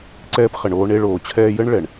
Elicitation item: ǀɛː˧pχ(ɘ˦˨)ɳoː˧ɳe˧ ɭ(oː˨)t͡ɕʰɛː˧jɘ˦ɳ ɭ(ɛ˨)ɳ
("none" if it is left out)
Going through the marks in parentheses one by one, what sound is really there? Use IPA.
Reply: ɘ˨, oː˨, ɛ˨

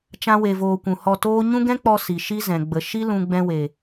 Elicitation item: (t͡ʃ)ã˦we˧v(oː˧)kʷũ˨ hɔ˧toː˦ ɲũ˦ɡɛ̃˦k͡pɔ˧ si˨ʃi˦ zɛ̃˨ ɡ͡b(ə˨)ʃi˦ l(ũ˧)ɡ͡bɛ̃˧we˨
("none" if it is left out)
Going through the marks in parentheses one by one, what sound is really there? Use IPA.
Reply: t͡ʃ, oː˧, ə˨, ũ˧

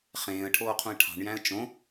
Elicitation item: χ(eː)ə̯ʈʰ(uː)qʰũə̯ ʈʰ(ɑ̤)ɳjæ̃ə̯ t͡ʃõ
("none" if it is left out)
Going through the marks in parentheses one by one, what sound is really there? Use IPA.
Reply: ẽː, oː, ɑ̤

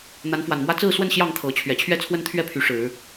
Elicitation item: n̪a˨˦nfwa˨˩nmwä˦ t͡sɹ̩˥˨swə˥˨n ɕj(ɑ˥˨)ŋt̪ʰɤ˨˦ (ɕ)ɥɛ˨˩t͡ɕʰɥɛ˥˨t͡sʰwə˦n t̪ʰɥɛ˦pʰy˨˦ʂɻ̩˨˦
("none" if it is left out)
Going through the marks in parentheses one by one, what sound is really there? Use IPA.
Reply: ɑ˥˨, t͡ɕʰ

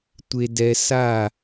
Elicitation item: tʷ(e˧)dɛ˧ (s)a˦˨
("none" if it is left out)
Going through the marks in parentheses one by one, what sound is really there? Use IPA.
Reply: e˧, s

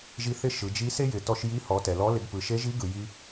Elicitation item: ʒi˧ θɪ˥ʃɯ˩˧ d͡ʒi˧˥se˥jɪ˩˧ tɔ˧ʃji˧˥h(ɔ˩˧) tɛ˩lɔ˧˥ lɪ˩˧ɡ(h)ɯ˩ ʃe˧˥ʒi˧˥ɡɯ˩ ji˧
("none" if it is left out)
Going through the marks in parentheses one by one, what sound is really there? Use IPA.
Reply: ɔ˩˧, p

